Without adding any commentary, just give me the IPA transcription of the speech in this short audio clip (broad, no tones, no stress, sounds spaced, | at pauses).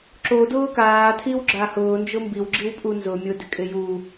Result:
ǁ o d ʊː k aː tʰ i w ɡ͡ǁ a h ʊː n d͡ʒ ʊ m b i w ɡ͡ǁ i w pʼ u n z ʊ mʲ ʊ d ɪ kʼ ɪ j u